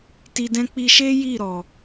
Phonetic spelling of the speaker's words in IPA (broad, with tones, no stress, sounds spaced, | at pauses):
t i˧ d ɛ̃˦ k͡p i˧ ʃ e˦ j i˦˨ ɾ ɔ˨